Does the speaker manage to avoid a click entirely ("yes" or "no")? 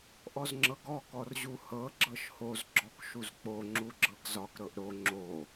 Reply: no